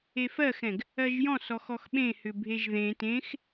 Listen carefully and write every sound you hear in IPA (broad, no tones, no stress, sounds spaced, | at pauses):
e f ɜ x ɛ̃ ɡ | ɜ ʒ j ɔ̃ s ɔ x ɔ x ɓ ẽ h ʏ bʱ e ʒ ð ẽ t ẽ x